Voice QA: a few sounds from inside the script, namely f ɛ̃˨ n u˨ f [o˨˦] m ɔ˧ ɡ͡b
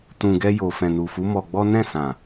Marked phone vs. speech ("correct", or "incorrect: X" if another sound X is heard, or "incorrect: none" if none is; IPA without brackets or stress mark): incorrect: u˨˦